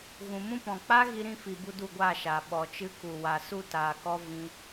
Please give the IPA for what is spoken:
ɣ ũ˨ m ũ˦ p ɔ̃˨ k͡p a˦ ɣ i˧ ɾ ĩ˧ f i˨ b u˧ d u˦˨ ɡʷ aː˦˨ ʃ aː˨ ɓ ɔ˨ t͡ʃ ɨ˦ k u˨ w a˨ s u˦ t aː˨ k ɔ˦ v ĩ˧

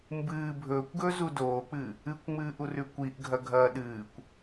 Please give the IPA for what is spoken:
m b ɨː bʱ ɵː kʷ ɡ ɵː z u d oː k͡p ɨ | ɨ kʷ ŋ͡m ɨː ʔ u r ʉ kʷ i ʔ ɡʱ ɐ ɡʱ ɐː ɗ ɨː kʷ

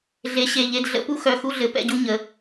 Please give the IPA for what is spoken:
ɮ e˨˦ ɕ e˩˧˩ ʎ e˥˨ d ɮ ə̰˦ p u˦ x œ˩˧˩ x u˥˨ ɮ ɘ˨˦ p ɛ̰˥˨ ɟ u˦ ɲ ə˩˧˩

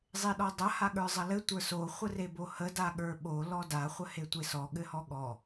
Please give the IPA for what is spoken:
zˤ e ɗ ɔ dˤ ɐ h a ɠ ə˞ zˤ ɐ l ɘ tʷ ə˞ s o χʷ ə r e b o h ə d a ɠ ə˞ ɓ o l ɔ d a χʷ ə h e tʷ e s ɔ ɠ ɘ h ɔ ɠ ɔ

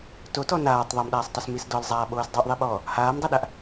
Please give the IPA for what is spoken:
t o t ɔ n aː tˤ ðˤ o m ɗ aː sˤ tˤ o s m i s d ɔ l zˤ aː ɓ oː s dˤ o ʔ ðˤ i ɓ ɔː | h aː m dˤ a ɗ a ʔ

